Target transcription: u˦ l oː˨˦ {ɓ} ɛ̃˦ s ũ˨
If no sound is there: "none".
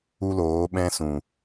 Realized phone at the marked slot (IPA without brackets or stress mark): ɓ